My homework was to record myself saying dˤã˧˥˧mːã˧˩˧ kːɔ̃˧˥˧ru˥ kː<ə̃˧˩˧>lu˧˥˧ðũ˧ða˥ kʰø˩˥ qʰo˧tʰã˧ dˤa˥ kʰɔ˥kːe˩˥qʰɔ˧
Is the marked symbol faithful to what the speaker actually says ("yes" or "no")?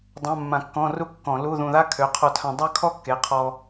no